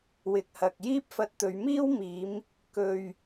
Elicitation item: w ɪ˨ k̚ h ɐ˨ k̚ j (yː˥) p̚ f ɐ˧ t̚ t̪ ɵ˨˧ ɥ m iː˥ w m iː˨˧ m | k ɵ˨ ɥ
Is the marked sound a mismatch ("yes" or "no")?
yes